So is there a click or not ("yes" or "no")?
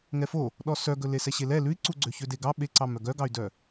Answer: yes